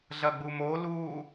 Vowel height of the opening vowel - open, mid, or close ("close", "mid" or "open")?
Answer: open